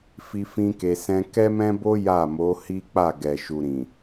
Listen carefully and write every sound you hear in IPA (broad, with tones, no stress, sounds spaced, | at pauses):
f i˦ f ĩ˦ k e˧ s ɛ̃˦ k ɛ˦ m ɛ̃˦ b o˦ j a˦˨ m o˨˦ h i˦ k͡p a˦˨ ɡ ɛ˨ ʃ u˨ ɾ ĩ˨